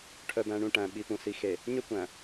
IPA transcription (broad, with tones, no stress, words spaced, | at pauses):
ʈʰœ˨bæ̃˨ɳũ˨ ʈæ̃˨ɓi˨pũ˨si˨ xe˨ | ɲø˦kʷæ̃˨